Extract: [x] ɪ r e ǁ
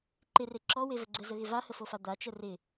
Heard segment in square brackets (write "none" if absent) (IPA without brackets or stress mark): ǃ